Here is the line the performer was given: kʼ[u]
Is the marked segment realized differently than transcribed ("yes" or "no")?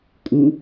no